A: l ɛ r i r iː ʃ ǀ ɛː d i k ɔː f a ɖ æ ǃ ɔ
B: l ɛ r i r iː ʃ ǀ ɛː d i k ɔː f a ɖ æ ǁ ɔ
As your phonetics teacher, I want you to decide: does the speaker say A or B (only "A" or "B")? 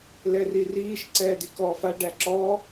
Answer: B